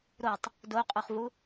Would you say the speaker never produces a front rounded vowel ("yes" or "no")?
yes